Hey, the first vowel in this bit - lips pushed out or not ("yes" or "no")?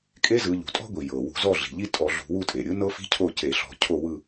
no